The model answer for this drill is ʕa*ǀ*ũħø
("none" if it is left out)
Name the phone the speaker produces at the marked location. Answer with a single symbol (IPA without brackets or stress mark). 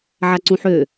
ǀ